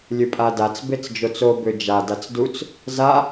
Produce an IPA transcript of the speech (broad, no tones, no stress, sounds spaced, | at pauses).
lʲ ɨ pʼ a d a t͡s b e t͡s d͡ʒ o t͡s o b ø d͡ʒ a d a t͡s d u t͡s | z a